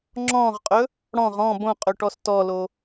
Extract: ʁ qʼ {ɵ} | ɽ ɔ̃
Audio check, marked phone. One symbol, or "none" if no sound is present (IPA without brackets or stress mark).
ɵ